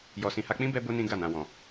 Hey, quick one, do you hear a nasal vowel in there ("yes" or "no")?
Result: yes